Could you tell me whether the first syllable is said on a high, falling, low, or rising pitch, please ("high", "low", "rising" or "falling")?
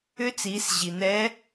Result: rising